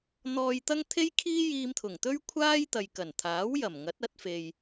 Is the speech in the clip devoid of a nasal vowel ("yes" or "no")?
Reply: yes